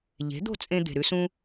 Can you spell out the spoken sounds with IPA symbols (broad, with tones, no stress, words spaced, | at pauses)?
ʎe̤˩˥d̪o̤˥˩t͡sʼẽ˧ d̪e̤˩ ɾʉ˥sũ˥